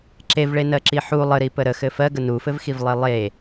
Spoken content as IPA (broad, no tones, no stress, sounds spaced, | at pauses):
ǁ e v ɭ e n ɜ ǁ i ħ u lˠ ə ɾ i p ə ɾ ə x ɘ f ɜ ɡ ə n u f ɘ v x i v lˠ e lˠ e